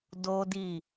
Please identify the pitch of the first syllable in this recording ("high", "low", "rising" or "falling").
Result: high